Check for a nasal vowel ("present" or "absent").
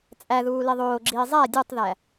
absent